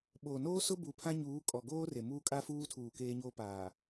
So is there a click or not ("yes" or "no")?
no